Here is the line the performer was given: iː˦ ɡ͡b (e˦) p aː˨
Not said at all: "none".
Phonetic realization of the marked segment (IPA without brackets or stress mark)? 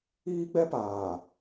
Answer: ɛ˦